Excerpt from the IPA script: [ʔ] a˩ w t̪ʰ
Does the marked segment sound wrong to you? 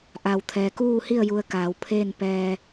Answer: no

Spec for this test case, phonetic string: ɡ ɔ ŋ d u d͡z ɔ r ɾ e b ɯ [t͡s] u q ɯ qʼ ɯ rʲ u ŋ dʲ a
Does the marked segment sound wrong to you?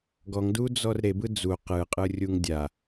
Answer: yes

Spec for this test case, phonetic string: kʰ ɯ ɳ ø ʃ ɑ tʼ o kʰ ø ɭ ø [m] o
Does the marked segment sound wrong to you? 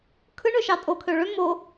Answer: no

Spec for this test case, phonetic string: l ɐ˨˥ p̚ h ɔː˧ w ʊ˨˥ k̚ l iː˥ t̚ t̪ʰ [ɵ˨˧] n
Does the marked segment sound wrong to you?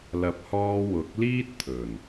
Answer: yes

